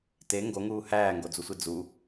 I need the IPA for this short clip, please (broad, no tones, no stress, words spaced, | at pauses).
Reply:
te ŋɡoŋuː hæːŋɡod͡zusʷi d͡zu